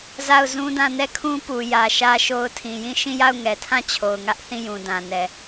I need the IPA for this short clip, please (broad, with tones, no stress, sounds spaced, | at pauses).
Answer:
z a˦˨ ʊ̯ z ũ˦ d ã˦˨ n ɛ˦˨ kʰ ũ˦ p u˨ j ä˨ ʃ ä˦ ʃ o˦ ʊ̯ tʰ ĩ˨ j ĩ˦˨ ʃ ĩ˦˨ j a˦˨ ʊ̯ ŋ ɛ˨ tʰ ã˦˨ t͡ɕʰ o˨ ʊ̯ ŋ ä˦ ʔ θ ĩ˦˨ j ũ˨ d ã˨ n ɛ˨